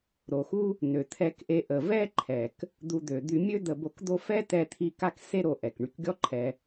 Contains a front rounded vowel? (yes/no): yes